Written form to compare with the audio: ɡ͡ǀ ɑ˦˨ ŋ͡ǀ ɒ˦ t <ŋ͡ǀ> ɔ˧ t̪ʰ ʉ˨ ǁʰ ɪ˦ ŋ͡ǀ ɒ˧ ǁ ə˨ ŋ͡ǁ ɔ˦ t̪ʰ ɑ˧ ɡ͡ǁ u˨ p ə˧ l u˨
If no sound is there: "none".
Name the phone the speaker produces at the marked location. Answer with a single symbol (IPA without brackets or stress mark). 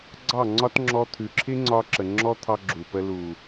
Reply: ŋ͡ǁ